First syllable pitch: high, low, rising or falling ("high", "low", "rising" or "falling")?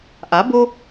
rising